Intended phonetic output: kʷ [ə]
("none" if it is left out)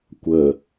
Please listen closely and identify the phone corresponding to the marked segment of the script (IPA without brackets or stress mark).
ə